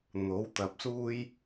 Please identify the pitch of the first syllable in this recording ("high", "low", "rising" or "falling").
rising